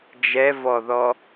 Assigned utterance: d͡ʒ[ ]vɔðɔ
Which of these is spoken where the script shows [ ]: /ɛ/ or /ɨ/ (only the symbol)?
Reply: ɛ